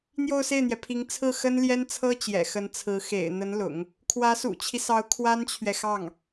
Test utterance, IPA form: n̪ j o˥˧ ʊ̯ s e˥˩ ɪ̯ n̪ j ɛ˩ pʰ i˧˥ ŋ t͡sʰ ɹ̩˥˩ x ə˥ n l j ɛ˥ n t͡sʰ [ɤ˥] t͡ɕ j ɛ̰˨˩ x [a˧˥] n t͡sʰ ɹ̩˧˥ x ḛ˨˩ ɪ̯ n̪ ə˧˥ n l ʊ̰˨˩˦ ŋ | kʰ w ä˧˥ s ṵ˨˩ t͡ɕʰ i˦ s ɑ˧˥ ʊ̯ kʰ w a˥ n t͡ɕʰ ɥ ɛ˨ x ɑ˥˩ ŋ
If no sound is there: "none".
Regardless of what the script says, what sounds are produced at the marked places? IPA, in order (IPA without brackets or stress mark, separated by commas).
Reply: ɤ˥, ə˧˥